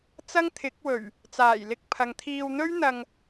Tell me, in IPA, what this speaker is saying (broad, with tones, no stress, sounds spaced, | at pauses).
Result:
t͡s ɐ˥ ŋ t̪ʰ ɪ˨˥ k̚ w ɵ˨˩ ɥ | t͡s aː˨˩ j l ɪ˧ k̚ pʰ ɐ˨ ŋ t̪ʰ iː˧ w n̪ ɵ˥ ɥ n̪ ɐ˧ ŋ